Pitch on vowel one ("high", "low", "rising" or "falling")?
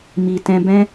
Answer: low